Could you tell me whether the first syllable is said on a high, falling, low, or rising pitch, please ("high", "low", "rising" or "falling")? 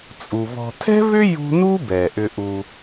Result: low